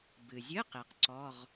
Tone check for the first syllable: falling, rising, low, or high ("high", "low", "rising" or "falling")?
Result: low